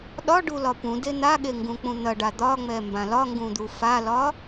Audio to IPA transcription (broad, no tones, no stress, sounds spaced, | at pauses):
ɗ ɒ ɖ u l ɒ p ũ d e n̪ a ɠ e ŋ ɡ ũ k͡p ũ n̪ ɐ ɖ a d̪ ɒ ŋ͡m ɛ m b ã l ɒ ŋ ɡ ũ d̪ u f a l ɒ